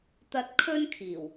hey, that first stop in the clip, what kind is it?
plain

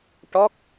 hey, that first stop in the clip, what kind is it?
plain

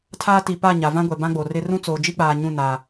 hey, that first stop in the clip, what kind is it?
aspirated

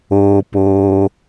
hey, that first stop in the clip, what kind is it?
plain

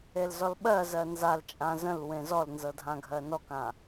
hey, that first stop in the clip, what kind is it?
implosive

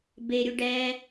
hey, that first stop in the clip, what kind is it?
plain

